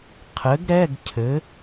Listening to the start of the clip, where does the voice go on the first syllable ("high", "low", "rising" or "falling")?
rising